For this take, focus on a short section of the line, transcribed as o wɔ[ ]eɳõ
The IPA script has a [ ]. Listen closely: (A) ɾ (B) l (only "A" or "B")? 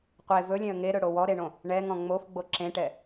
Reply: A